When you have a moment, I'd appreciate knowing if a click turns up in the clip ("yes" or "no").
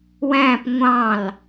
no